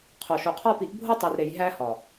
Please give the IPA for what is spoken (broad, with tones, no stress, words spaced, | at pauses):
qʰo˨ʃo˨qʰɒ˦ pi˨˦ʔbʱo˦tˤi˨rɾe˨j ɦæ˦ hɒ˨